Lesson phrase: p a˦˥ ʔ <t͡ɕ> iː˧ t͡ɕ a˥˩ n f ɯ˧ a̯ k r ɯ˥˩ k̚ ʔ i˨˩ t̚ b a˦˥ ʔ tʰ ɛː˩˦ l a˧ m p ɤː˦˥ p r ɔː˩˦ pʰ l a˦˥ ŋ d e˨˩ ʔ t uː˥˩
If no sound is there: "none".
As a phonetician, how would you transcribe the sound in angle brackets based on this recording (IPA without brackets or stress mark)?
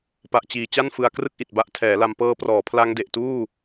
t͡ɕ